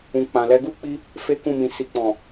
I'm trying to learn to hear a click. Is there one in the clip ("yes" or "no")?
no